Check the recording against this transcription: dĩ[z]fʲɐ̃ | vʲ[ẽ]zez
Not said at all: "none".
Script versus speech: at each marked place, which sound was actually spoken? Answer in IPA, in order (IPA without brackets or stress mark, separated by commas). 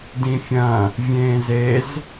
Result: none, ẽː